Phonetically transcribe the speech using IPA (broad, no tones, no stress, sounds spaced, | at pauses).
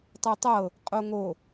tˤ ɤ tˤ ɤ | qʼ o ŋ o